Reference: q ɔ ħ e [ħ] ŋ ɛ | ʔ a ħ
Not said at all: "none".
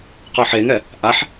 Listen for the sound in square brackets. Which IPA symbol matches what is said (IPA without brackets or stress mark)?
none